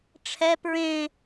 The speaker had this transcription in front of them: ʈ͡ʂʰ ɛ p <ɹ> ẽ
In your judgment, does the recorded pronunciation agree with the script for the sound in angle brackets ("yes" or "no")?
yes